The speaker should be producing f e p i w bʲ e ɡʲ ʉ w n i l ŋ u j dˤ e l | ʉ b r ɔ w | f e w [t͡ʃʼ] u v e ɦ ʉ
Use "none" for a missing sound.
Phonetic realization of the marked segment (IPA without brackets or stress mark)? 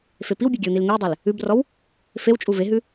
t͡ʃʼ